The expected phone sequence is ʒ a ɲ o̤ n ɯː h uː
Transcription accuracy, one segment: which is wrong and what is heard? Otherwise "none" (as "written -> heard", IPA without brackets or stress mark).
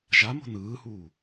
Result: ɲ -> m